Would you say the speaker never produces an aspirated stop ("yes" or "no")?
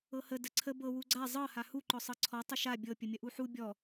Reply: no